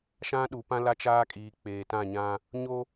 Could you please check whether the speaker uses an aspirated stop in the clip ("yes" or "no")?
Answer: no